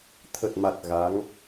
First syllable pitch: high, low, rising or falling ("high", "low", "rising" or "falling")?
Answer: low